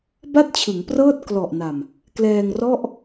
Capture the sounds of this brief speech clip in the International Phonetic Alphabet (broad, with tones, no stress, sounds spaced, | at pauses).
b a˥˩ t̚ t͡ɕʰ ɯ˩˦ ŋ p r ɤː˥˩ t̚ k l ɔ˨˩ ʔ n a˨˩ m | k l ɛː˧ ŋ r ɔ˥˩ ʔ